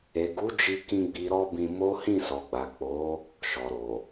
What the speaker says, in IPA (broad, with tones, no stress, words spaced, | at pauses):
e˨ɡu˨˦d͡ʒi˧kĩ˧ ɡ͡bi˨ɾɔ˧ bĩ˧mo˦ hĩ˦˨sɔ˨ɡ͡ba˨ k͡po˨˦ | ʃɔ˨ɾo˨